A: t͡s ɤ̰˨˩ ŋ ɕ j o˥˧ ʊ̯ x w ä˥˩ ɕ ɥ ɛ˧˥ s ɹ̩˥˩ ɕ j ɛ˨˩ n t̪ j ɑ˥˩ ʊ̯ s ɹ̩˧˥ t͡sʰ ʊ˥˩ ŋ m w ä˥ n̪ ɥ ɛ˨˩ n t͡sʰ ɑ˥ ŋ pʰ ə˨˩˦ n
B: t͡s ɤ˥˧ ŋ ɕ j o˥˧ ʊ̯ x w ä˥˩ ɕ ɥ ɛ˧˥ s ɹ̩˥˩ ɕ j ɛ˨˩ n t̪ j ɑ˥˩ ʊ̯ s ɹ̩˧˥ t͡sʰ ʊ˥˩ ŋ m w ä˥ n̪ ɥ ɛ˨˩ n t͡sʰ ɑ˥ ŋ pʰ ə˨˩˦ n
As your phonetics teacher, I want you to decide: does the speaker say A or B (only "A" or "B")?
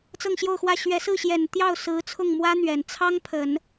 B